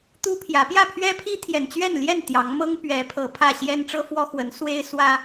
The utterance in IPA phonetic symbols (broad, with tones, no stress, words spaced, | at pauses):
t̪u˦pʰjä˨˦ pjä˥˨pʰɥɛ˦pʰi˦ t̪ʰjɛ˨˩nt͡ɕɥɛ˥˨nljɛ˥˨n t̪jɑ˨˦ŋmɤ˦ŋ pɥɛ˨˦pʰɤ˨˩ pʰä˥˨ ɕjɛ˦nʈ͡ʂɤ˦ fwɔ˦xwə˨˦nswe˦ɪ̯ swä˦